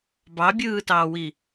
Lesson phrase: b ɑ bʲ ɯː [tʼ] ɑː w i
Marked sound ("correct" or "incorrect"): incorrect